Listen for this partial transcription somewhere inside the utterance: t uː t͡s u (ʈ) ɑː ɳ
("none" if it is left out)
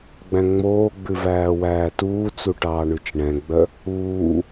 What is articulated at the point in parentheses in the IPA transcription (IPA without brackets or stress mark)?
ʈ